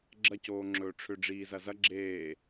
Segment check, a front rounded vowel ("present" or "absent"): present